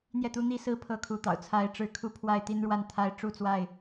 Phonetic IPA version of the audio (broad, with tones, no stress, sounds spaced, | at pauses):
n̪ j ɛ˥˨ t̪ u˦ n̪ i˦ s ɹ̩˦ pʰ ɤ˦ kʰ u˨˦ t̪ ɑ̰˨˩ ʊ̯ t͡sʰ a˨˦ ɪ̯ ʈ͡ʂ ɻ̩˨˦ kʰ u˦ pʰ w a˥˨ ɪ̯ t̪ i˦ n ɻ w a˥˨ n t̪ʰ a˥˨ ɪ̯ ʈ͡ʂ u˥˨ t͡s w a˥˨ ɪ̯